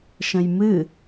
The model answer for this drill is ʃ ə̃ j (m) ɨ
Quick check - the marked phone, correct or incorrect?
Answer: correct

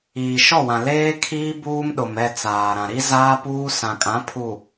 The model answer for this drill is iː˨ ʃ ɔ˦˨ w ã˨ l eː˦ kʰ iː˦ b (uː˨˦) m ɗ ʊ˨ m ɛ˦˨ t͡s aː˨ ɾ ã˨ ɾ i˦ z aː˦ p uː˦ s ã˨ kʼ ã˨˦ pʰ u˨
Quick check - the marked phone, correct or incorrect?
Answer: incorrect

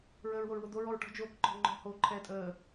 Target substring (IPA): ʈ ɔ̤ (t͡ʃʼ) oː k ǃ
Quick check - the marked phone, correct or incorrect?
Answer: incorrect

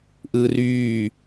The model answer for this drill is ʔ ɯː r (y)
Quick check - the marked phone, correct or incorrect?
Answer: incorrect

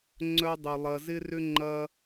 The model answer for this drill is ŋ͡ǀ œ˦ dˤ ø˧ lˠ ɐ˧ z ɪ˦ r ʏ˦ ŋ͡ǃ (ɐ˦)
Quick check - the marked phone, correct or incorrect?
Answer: correct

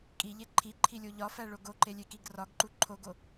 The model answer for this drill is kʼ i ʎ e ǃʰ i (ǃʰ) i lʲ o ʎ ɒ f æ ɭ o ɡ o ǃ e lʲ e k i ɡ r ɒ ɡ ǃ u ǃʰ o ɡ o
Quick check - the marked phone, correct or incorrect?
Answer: correct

